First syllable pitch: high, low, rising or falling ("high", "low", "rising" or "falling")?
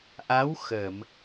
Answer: rising